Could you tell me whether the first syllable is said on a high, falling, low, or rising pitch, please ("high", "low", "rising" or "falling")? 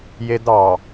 high